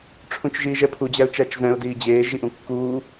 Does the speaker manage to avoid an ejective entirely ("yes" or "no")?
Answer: yes